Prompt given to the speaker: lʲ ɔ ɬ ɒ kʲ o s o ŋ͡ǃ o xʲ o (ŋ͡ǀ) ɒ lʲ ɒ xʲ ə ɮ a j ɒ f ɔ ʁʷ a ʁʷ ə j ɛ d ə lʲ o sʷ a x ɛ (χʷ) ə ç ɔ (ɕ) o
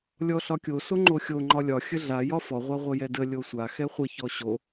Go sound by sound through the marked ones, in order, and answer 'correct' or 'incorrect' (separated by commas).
incorrect, correct, correct